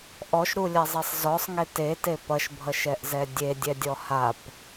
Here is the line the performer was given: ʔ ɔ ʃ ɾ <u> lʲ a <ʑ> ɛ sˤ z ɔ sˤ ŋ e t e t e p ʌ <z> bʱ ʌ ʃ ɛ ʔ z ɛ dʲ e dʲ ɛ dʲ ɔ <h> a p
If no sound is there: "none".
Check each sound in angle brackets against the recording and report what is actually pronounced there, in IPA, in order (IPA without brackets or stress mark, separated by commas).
u, zˤ, ʃ, h